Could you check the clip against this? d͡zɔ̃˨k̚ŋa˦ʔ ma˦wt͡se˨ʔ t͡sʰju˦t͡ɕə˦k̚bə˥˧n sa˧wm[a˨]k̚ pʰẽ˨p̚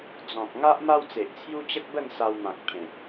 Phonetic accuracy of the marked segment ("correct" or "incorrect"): incorrect